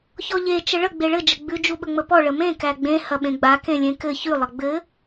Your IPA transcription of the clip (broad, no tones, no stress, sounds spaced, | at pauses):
ç ɔ ʎ e t͡ʃ ə ɭ ə ɡ͡b e ɭ ɘ d͡ʒ ə ɡ͡b ʉ d͡ʒ u ɓ ə ŋ͡m ə p ɔ ɭ ə m ẽ k æ ɡ͡b ẽ h ɐ ɓ ẽ ɡ͡b a k ẽ lʲ ẽ k ɘ ç ʉ lˠ ɐ ɡ͡b ɘ